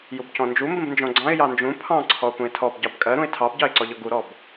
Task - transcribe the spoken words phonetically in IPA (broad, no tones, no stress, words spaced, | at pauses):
jubcɔ̃nd͡ʒu mbə̃bnd͡ʒɔ̃ɡ͡ǀɑ̃ɪ̯ jɑnd͡ʒũ pʰɑ̃ ǀʰɔʊ̯pũɪ̯tʰɔb ɟɑbkʼɜɾũɪ̯ tʰɑbɟɑɪ̯ǀɔʎɔ ɡuɾɔb